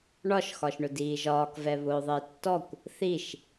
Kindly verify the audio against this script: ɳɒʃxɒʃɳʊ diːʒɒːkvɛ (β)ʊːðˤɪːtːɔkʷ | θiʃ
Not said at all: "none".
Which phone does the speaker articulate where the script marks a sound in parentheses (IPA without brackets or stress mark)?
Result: β